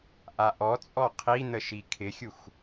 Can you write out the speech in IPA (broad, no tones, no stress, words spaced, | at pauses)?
ʔaʔɔt͡sʼɔ qʰi n̪əʃikʰɪxʲux